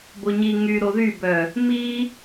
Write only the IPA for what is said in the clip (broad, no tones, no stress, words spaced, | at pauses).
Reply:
boɲi ŋy ɾoðybœ | mi